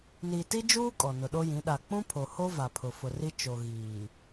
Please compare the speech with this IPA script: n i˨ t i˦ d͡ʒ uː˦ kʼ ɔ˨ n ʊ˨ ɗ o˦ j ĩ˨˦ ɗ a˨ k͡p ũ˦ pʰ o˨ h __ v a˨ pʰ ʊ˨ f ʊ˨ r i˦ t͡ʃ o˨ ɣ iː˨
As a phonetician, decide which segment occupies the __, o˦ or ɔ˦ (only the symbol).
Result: o˦